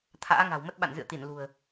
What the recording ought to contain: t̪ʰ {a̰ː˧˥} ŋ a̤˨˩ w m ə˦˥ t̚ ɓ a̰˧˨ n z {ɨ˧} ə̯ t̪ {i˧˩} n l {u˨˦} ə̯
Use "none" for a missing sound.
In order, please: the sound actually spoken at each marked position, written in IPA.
a̰ː˧˥, ɨ̰˧˨, i˧˩, ṳ˨˩

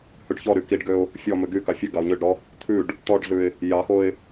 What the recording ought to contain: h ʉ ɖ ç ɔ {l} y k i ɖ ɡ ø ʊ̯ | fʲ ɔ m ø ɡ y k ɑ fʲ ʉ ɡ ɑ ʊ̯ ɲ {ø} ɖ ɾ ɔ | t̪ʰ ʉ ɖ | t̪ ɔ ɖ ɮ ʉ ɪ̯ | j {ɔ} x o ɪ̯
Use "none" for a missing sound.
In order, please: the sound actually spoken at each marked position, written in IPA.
ɾ, ø, ɑ

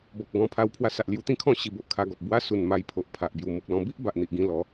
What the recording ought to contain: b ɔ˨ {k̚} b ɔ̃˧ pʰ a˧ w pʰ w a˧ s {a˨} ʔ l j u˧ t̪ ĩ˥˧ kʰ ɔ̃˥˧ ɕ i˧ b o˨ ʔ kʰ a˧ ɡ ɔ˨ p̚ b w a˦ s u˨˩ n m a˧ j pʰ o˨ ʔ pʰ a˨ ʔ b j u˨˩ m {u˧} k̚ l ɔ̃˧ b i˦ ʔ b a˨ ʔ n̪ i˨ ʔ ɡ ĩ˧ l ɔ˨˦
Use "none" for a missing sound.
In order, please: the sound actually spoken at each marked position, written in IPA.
k̚, a˨, u˨

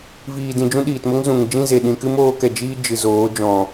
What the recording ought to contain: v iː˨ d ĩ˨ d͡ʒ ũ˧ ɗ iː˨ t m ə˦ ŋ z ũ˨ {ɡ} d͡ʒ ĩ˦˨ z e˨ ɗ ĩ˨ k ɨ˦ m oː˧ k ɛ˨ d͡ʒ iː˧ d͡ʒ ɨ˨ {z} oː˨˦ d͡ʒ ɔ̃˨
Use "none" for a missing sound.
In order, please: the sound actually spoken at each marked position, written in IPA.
ŋ, z

